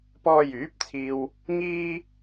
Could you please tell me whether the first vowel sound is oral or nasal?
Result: oral